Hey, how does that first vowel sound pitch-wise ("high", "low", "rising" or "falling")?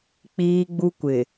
high